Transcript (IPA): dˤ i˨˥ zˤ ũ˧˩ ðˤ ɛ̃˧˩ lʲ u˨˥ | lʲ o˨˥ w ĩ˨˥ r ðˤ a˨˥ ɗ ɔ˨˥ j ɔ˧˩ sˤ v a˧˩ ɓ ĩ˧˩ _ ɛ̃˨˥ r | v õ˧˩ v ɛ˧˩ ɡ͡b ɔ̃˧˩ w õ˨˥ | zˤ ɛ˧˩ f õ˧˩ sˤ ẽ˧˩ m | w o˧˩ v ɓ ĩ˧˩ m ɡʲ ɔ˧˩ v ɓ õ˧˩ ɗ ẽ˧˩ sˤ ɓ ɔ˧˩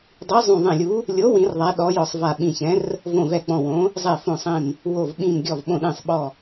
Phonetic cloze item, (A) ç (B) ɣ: A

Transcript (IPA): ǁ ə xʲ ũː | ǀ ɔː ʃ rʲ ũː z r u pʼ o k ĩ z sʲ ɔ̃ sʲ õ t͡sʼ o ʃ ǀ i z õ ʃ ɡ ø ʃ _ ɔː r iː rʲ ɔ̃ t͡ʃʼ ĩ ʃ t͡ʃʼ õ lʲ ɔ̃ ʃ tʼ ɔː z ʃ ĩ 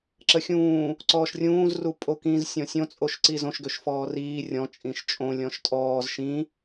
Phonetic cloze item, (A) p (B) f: B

